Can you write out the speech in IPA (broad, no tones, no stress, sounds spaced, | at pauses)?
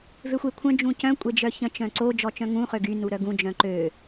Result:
v ø xʷ e kʷʰ œ̃ d͡ʒ ũ c œ̃ kʷʼ e d͡ʒ œ ç ə̃ t͡ʃ œ̃ ǀ o d͡ʒ ɔ t͡ʃ œ̃ ŋ ũ χ ø ɡ y n u ɾ œ ɡ ũ d͡ʒ œ̃ ǃ ø